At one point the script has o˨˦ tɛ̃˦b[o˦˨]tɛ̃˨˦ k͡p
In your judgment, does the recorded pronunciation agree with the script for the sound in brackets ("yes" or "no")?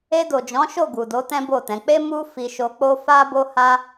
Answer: yes